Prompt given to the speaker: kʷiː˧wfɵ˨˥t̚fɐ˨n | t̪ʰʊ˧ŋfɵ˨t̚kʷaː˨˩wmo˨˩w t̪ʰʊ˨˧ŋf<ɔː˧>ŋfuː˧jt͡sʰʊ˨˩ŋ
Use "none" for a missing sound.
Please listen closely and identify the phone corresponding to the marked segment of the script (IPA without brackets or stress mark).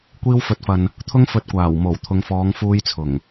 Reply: ɔː˨˧